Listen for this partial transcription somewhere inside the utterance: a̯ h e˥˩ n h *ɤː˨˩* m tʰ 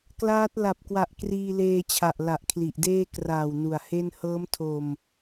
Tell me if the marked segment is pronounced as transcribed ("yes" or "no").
no